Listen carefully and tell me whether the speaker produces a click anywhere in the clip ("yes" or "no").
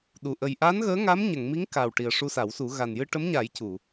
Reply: no